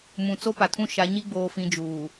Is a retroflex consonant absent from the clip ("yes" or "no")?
yes